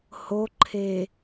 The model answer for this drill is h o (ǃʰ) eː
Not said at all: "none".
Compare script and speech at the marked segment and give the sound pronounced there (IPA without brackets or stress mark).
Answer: ǃʰ